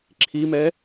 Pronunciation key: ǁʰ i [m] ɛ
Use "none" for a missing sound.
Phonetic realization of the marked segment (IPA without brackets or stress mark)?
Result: m